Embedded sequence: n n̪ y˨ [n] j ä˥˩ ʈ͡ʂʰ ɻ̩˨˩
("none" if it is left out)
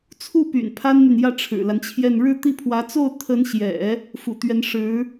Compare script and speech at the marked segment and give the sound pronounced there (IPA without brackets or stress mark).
n